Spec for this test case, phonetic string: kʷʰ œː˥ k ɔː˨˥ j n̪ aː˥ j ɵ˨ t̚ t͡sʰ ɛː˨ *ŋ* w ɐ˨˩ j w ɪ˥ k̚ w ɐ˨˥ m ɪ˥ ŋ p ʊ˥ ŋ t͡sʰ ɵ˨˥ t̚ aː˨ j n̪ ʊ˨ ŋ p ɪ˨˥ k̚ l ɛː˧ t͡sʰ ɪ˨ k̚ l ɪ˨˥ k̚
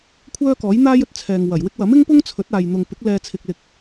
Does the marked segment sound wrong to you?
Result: no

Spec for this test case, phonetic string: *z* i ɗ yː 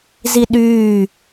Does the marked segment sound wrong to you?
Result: no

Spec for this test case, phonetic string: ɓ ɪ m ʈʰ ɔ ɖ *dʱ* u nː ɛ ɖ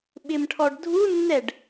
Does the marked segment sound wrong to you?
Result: no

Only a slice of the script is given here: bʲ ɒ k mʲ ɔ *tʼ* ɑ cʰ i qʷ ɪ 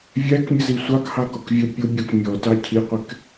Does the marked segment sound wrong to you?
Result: yes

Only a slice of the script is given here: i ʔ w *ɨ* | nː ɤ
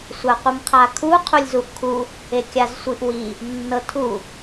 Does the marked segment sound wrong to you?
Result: yes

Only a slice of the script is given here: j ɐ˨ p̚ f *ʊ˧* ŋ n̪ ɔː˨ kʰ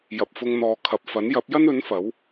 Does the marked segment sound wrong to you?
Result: no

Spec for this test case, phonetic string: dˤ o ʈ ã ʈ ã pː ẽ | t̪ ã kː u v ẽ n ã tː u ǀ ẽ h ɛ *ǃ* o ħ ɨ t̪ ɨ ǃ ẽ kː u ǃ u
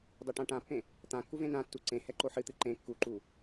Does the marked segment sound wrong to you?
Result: no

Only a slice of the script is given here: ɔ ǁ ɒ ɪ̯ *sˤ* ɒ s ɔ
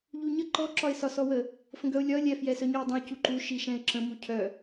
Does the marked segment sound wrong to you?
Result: yes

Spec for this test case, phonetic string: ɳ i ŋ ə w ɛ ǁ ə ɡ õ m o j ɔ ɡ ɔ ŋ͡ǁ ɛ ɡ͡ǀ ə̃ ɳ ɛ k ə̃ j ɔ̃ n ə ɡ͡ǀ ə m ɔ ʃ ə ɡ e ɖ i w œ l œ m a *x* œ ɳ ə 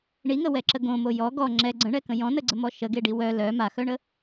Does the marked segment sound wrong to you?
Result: no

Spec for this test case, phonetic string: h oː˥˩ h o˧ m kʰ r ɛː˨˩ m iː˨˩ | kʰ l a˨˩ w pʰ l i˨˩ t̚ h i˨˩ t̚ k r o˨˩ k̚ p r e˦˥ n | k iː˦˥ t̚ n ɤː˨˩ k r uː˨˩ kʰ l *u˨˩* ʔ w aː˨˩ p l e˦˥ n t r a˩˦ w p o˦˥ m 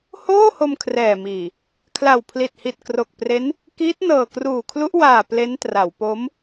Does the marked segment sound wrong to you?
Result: yes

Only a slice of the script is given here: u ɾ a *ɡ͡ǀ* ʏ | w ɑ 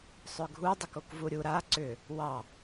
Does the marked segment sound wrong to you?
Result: yes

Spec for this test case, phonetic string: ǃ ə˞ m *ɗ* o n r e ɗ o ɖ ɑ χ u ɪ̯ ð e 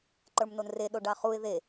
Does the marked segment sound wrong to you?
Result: yes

